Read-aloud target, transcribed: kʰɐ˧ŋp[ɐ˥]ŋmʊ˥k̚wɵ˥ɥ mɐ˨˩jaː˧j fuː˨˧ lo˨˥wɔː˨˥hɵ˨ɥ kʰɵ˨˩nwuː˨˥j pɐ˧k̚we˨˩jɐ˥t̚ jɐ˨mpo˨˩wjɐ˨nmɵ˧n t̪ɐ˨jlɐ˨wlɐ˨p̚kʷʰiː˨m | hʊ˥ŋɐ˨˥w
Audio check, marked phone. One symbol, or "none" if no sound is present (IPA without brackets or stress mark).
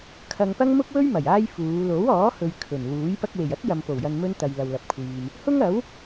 ɐ˥